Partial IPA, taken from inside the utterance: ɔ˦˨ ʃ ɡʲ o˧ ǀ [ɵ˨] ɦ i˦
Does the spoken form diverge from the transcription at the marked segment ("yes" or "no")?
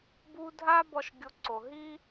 yes